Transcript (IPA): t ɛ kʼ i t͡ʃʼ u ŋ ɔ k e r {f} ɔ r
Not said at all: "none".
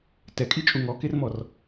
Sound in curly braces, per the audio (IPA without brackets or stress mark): m